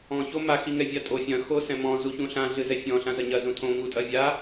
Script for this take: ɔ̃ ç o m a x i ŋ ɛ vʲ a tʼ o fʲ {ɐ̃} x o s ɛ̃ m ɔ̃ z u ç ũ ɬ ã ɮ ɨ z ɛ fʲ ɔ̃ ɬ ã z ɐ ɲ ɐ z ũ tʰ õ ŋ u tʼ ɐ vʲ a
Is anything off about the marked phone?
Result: no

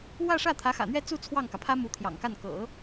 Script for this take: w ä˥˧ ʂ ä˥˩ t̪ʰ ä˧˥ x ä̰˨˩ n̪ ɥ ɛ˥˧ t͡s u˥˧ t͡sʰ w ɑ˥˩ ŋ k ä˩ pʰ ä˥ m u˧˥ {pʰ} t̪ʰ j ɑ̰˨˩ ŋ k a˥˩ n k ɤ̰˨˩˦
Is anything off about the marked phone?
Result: yes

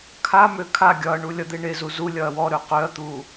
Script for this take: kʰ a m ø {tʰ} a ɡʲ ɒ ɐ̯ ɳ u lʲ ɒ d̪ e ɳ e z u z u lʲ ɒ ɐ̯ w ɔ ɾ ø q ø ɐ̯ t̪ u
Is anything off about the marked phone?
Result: yes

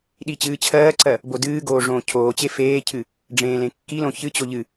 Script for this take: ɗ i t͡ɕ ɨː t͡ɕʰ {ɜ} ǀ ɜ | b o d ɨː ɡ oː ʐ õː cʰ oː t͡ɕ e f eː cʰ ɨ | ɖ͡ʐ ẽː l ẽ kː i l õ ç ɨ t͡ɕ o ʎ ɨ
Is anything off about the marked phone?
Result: yes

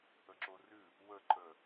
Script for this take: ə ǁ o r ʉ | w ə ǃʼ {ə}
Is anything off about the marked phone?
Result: no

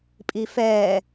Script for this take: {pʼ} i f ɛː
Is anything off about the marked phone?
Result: no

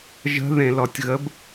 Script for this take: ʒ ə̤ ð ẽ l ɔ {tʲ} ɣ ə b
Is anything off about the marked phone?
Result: no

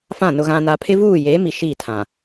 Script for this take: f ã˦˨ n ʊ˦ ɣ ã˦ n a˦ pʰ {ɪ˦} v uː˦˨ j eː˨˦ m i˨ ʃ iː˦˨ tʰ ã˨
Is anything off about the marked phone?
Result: no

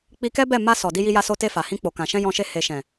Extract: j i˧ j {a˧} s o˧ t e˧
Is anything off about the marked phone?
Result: no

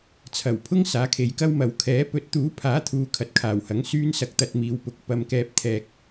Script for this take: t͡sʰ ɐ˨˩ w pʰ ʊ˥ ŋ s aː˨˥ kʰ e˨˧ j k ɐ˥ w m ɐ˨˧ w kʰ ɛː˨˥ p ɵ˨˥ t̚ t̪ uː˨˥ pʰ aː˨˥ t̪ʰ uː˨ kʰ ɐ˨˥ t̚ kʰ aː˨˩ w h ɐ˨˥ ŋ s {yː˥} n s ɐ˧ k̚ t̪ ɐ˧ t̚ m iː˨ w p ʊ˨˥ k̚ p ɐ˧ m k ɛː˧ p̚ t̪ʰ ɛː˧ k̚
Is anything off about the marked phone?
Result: no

